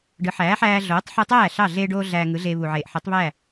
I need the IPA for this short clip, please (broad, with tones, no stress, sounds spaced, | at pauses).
ɖ ɯ˩˥ ħ æː˩˥ ħ æː˧ ɮ oː˩˥ tˤ ħ ɯ˧ tˤ æː˥˩ ɬ ɑ˥˩ ɮ eː˧ ɖ oː˧ ɮ æː˧ ŋ ɯ˩˥ ɮ eː˧ β u˩ ʕ eː˩ ʔ ħ ɯ˩˥ tˤ β æː˥˩